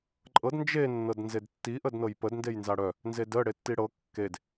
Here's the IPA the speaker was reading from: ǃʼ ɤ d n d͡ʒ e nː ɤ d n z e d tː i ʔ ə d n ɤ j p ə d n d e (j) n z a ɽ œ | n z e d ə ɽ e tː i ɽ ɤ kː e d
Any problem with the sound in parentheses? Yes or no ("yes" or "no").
no